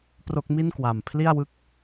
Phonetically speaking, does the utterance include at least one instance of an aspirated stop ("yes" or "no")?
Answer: yes